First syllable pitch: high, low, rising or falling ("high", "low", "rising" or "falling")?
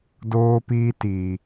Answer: high